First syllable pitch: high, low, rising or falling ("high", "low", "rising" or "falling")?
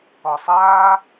low